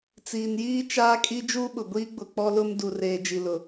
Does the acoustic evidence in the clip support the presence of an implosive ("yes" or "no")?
yes